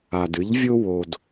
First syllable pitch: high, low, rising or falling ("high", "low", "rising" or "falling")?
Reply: low